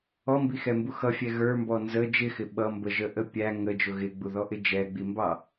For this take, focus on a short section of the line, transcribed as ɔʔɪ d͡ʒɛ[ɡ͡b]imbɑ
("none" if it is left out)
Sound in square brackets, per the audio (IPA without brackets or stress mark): ɡ͡b